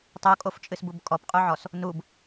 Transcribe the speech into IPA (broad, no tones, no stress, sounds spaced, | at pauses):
tˤ u kʼ o f t͡ʃʼ ɨ s b u b kʼ ɔ p qʼ u ʕ ɔ s | n u b